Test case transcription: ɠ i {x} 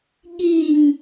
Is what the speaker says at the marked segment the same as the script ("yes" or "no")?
no